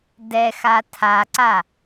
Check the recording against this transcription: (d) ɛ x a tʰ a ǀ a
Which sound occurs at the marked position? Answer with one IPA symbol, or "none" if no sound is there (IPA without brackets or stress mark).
d